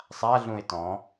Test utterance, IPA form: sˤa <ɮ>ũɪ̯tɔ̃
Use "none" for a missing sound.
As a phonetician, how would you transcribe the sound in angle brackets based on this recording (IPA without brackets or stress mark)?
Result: ɮ